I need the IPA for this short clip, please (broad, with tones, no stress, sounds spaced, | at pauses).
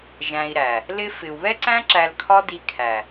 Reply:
ʒ æ̃˧ i̯ ɾ æ˨ | l ɪ˧ f ɪ˨ u̯ β ɛ˦ ǀ æ̃˦ ǁ æ˧ l kʰ ɒ˦ d i˧ kʰ æ˨